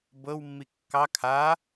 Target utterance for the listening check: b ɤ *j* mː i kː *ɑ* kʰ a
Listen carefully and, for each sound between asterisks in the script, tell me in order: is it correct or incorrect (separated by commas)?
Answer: incorrect, correct